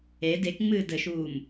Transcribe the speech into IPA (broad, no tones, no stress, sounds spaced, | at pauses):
e d e k ŋ͡m ɨː d ɘ ʃ uː m